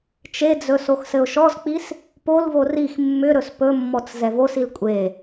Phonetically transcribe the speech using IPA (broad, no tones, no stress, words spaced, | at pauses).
t͡ʃed͡zɵ soxsɘʊ̯ʃɔzk͡pis | polvo rix mːʏɾɵs pɵmːɔt͡s zɛvosil kʷʼe